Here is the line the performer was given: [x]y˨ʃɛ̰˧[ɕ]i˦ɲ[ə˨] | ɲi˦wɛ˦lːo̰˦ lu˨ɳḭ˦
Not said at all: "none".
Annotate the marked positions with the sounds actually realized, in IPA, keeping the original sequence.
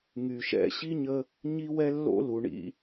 ŋ, ɕ, ə˧

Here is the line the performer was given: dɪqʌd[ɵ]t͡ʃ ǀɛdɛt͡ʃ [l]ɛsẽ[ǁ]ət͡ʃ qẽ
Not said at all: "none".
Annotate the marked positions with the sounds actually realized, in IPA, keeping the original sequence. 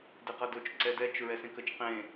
ɵ, ɹ, k

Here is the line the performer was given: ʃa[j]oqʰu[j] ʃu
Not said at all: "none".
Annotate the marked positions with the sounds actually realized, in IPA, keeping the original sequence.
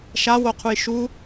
w, j

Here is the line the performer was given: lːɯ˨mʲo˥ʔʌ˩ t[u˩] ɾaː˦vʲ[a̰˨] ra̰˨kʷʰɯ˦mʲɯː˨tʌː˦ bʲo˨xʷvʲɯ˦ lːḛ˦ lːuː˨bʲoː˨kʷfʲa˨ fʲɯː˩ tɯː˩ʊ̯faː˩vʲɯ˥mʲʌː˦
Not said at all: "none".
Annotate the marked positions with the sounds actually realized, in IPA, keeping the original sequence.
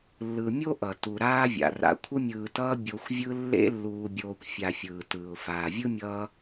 u˩, a̰˩

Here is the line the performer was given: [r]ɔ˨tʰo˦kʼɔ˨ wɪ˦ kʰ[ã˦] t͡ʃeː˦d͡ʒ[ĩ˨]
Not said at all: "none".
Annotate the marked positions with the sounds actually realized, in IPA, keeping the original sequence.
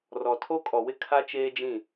r, a˦, ĩ˦˨

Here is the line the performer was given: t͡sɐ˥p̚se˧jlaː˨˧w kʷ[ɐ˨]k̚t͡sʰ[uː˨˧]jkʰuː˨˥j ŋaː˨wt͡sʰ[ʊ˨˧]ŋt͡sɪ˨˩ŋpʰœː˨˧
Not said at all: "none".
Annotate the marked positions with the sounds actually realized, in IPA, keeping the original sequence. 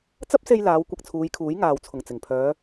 ɐ˧, uː˨˧, ʊ˨˩

